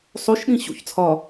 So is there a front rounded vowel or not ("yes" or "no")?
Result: no